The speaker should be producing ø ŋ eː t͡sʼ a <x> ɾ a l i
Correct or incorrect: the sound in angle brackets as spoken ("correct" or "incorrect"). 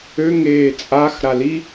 correct